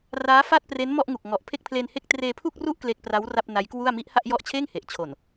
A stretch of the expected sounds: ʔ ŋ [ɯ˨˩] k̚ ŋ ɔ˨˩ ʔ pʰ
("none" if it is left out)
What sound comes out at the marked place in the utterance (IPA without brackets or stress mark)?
u˨˩